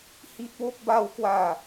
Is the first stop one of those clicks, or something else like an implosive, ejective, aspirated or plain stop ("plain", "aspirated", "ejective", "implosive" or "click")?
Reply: plain